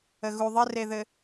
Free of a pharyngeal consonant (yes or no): yes